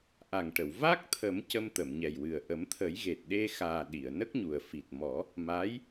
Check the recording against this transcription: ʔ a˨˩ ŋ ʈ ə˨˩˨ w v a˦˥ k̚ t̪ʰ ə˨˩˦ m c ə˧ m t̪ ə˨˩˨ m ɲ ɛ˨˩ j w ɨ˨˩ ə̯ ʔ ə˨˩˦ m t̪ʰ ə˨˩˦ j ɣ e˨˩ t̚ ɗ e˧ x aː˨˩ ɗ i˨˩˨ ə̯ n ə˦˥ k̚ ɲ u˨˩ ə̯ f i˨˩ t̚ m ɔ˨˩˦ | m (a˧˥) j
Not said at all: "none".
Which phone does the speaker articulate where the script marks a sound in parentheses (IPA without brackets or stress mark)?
a˧˥